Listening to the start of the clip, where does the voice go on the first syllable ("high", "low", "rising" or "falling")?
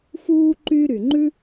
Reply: high